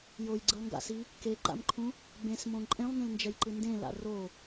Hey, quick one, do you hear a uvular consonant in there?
no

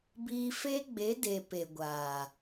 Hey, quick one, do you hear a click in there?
no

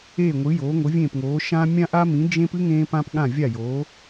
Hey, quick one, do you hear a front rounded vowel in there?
no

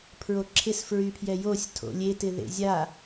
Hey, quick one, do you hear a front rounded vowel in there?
yes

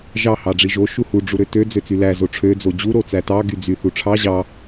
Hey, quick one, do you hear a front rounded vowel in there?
yes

